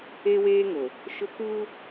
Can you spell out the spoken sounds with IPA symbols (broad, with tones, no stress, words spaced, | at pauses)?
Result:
e˦weː˦ŋo˨ | ʃʊ˦kuː˦